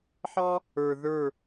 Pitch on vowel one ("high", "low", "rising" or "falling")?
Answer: high